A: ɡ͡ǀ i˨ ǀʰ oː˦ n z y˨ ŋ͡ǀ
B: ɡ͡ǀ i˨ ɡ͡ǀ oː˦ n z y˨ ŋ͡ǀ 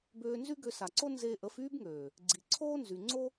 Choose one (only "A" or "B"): A